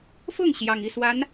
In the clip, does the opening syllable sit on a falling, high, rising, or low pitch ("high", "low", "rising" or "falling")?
falling